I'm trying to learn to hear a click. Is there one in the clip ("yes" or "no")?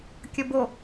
no